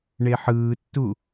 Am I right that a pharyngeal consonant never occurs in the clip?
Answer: no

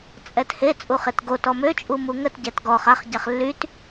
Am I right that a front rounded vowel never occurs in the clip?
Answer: no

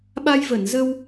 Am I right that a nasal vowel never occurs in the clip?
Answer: yes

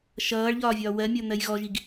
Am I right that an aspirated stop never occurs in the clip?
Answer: yes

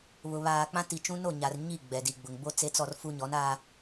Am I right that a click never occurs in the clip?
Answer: yes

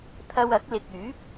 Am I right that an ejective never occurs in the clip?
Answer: yes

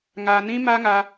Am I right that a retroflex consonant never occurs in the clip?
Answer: yes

